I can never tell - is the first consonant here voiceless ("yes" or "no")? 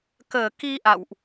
yes